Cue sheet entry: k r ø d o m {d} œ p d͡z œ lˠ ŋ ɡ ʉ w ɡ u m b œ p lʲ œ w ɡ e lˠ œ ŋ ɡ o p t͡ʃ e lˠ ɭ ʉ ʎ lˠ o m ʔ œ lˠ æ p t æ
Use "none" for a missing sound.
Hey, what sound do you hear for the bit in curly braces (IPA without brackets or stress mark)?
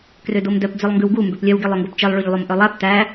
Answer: d